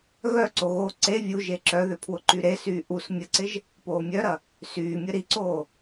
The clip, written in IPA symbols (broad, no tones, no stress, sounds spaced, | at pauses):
ɣ œ ǀ o ɣ o ǀ e vʲ u ʒ e ǁ œ ð ʏ pʰ w ʊ ǃ y ɾ e s yː ʔ u s mʲ ə ǀ ɪ ʒ | p oː mʲ œ ɾ ɐ | s yː mʲ ə ɾ i ǀ oː